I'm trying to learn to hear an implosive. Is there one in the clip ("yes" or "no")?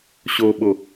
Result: yes